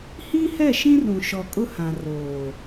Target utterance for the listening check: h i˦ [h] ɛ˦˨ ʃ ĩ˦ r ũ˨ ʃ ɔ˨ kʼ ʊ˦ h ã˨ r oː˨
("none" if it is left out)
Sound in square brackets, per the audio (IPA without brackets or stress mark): h